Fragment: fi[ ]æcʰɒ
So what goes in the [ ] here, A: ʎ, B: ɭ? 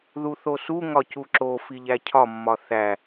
A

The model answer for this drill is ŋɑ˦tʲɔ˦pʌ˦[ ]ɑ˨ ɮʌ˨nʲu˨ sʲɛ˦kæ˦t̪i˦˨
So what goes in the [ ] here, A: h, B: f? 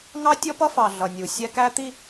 B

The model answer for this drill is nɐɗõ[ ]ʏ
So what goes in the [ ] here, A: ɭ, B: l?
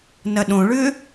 A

